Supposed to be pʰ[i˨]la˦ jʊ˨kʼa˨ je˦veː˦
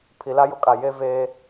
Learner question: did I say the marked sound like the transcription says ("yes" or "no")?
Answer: yes